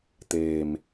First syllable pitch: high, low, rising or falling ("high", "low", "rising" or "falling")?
low